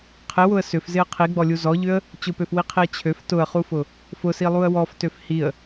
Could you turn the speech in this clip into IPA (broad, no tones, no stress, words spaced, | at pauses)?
qʰɪwʊə̯ sʏfzɪə̯ qʰiɡ͡bɔlʲu zɔʎʏə̯ | t͡ɕʊpøfwiqʰiə̯ t͡ɕʰøf tʊə̯χufʊ | fʊsilˠuə̯ wɔftøf hiə̯